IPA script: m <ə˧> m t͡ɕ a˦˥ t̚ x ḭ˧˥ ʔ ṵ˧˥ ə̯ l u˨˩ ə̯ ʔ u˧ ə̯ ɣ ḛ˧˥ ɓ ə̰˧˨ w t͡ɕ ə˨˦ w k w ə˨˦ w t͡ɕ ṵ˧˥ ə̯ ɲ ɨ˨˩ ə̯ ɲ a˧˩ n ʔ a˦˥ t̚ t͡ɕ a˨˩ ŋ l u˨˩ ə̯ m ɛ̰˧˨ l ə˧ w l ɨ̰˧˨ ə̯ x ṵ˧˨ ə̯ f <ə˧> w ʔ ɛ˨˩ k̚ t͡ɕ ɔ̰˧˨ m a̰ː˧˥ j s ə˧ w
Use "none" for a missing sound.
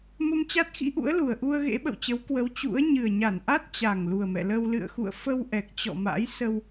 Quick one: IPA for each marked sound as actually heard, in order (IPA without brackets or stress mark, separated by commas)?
ə˧, ə˧